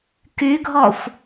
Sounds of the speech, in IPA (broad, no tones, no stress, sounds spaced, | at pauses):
k y ɡʱ ɔ xʷ